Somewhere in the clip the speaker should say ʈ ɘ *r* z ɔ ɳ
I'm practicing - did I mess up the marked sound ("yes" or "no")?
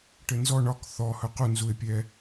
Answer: yes